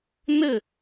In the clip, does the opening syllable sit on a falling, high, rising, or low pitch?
falling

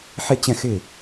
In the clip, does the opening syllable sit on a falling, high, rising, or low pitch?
falling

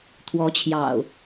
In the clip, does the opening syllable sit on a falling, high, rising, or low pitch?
rising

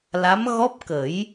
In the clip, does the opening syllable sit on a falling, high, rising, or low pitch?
rising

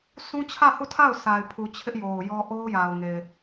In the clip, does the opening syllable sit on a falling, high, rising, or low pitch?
high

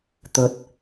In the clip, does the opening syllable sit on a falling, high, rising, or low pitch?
rising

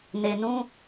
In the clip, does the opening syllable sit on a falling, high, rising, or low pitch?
low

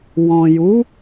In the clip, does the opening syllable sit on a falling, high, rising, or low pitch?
low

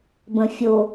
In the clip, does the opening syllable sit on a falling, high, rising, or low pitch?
low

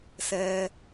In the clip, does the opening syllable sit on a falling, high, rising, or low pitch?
low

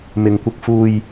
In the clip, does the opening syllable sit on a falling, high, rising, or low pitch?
low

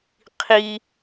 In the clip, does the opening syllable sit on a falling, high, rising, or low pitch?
high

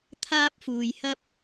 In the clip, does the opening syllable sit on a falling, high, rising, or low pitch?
high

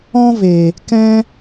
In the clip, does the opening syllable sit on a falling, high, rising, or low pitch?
high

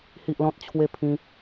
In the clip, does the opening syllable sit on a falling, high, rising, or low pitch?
high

